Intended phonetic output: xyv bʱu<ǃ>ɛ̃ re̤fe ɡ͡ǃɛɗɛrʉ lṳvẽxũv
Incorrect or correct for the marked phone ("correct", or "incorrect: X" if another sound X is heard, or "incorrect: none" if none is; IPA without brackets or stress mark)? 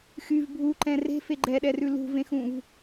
correct